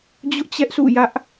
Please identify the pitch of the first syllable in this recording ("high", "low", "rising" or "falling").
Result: high